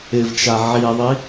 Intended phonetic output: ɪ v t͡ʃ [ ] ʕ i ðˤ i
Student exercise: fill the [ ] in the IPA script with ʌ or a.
a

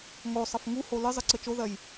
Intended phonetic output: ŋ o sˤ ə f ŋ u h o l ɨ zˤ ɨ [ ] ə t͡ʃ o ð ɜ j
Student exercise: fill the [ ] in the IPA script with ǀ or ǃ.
ǀ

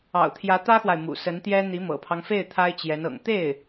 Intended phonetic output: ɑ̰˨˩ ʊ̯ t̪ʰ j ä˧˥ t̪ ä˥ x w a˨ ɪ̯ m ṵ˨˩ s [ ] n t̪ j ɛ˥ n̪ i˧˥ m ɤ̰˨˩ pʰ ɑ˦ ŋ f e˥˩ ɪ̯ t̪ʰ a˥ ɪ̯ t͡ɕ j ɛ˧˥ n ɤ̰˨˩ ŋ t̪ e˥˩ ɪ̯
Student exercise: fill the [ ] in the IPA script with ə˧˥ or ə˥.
ə˧˥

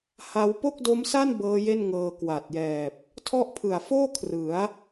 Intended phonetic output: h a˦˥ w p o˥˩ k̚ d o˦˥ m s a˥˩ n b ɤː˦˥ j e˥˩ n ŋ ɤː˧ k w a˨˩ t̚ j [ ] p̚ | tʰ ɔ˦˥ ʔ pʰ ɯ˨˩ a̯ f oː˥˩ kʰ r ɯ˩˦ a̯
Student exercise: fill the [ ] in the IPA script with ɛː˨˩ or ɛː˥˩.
ɛː˨˩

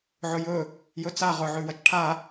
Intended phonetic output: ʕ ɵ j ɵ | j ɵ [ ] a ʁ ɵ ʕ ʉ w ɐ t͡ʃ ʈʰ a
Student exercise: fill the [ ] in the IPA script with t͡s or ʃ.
t͡s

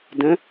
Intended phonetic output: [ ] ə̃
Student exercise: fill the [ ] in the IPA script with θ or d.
d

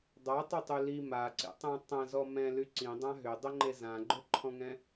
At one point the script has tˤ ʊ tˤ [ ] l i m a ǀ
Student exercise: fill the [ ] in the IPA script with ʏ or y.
y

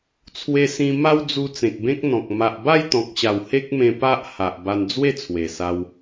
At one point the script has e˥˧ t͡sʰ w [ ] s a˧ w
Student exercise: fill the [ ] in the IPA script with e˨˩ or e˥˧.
e˨˩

